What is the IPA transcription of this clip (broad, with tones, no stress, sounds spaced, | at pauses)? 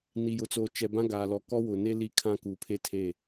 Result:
n i˨ j ʊ˨ t͡s oː˨ t͡ʃ ɛ˨ b ã˦ ɡ aː˨ l ɔ˨ k ɔ˦ w ʊ˨ n e˦ l i˦˨ kʰ ã˦ k u˨ pʰ e˦ tʰ e˦˨